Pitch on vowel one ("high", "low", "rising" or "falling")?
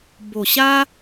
low